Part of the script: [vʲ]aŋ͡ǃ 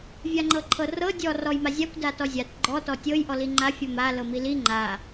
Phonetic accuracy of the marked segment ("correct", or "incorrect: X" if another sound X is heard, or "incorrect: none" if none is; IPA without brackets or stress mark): correct